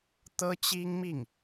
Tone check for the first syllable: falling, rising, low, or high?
high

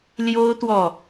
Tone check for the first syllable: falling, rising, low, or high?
high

